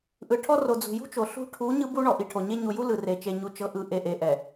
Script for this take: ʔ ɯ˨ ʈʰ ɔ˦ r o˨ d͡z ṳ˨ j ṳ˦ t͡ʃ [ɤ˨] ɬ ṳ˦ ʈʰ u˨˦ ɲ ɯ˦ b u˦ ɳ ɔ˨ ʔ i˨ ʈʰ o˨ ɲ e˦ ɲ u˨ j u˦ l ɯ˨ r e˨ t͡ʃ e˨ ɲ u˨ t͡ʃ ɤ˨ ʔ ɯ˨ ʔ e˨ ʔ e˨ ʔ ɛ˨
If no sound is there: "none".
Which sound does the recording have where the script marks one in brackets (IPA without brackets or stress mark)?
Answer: o˨